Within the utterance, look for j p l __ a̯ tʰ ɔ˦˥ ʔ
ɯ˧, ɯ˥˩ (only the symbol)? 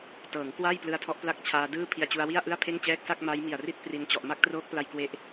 ɯ˧